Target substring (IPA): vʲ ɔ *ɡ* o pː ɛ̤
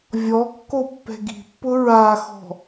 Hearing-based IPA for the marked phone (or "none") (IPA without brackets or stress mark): kː